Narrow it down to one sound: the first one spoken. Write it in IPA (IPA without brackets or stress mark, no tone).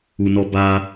u